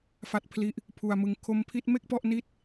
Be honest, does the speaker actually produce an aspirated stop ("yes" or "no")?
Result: yes